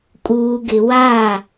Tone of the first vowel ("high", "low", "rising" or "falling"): low